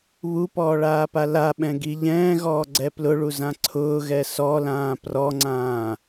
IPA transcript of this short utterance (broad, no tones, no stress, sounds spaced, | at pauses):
β u p ɔː ɭ aː p a l a ɓ ɛ̃ ɡ i ʎ ɛ̃ː ɣ ɔː ɡ͡ǀ ɛ p l ʊ ɭ u z ã ǀʰ ʊː ɣ ɛ s ɔ l ãː p r ɔ ŋ͡ǀ ãː